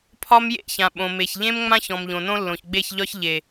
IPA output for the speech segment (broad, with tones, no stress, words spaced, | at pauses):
pʰɒ˦mjḛ˦˨çã˨ ɓõ˨me˨çʎẽ˦m ŋ͡mã˦ç ɔ̃˨mʎõ˨nõ˦lːõ˨ç ɡ͡be˦˨çʎɒ˦ç ʎe˨